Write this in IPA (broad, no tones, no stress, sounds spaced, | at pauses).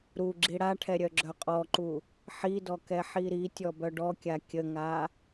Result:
ɾ u ɡ͡ǁ i ɽ a ʈʰ ɛ ɾʲ œ ɡ͡ǁ œ qʼ ɔ ǃ u | ħ i d ɔ k ɛ ħ i ɾ i tʲ ɔ b œ ɖ ɔ kʲ a kʲ ə ŋ a